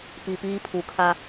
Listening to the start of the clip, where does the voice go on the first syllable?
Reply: low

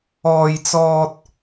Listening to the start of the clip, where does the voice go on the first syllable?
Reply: high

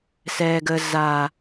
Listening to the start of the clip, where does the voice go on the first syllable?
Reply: low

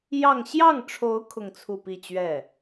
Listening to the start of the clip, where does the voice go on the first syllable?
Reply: falling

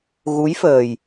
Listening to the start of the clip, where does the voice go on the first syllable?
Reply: rising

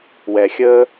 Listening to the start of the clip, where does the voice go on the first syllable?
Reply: low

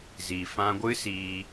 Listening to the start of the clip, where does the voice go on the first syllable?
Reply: low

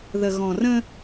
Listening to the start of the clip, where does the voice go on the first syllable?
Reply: low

